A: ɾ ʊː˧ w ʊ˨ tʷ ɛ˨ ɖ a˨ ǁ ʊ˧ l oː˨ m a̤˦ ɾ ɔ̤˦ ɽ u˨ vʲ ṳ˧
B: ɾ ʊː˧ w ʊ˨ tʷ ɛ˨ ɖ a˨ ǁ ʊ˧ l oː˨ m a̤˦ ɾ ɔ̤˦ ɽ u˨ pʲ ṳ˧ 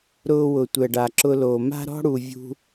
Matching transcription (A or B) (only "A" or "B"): A